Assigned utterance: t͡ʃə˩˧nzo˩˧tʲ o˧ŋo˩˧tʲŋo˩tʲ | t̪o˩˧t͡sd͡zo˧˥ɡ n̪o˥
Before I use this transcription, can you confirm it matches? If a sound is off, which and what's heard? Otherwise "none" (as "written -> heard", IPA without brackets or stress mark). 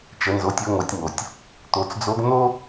none